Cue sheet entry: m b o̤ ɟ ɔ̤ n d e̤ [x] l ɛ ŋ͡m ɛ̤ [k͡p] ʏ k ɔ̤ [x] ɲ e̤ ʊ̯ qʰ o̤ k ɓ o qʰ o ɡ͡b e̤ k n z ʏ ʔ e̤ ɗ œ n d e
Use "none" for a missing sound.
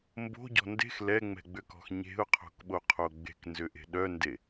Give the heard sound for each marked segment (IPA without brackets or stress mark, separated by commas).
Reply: x, ɡ͡b, x